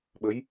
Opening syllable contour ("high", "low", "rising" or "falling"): rising